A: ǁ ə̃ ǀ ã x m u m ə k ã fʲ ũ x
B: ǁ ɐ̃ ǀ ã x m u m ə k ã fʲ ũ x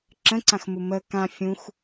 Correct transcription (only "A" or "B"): A